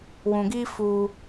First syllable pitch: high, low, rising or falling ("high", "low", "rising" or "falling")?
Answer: low